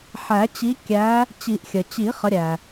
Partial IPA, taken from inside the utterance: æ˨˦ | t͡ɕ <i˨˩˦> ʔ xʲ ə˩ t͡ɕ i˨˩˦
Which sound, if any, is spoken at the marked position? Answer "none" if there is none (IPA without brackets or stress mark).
i˨˩˦